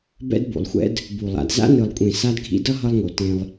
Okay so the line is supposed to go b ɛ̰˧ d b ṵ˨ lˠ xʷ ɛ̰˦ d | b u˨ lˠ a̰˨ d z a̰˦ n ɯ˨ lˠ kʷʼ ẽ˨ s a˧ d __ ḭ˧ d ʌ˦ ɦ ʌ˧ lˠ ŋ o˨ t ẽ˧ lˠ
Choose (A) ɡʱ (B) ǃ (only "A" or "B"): A